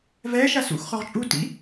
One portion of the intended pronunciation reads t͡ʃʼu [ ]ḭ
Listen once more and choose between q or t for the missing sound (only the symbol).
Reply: t